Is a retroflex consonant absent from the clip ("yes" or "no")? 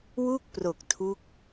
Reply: yes